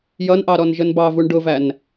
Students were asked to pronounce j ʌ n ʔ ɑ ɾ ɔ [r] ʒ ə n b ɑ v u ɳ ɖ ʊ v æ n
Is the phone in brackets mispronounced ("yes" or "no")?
yes